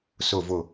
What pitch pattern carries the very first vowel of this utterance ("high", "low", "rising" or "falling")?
falling